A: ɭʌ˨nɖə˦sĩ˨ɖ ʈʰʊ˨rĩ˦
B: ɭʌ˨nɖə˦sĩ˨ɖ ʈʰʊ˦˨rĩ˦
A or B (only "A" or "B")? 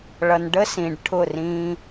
B